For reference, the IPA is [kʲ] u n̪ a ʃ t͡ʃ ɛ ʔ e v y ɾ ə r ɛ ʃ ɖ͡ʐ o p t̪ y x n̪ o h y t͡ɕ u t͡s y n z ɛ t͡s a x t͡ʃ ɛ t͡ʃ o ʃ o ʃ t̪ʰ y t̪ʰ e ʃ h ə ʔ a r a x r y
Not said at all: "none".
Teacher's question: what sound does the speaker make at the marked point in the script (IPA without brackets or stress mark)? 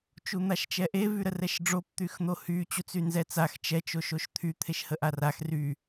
t͡ʃ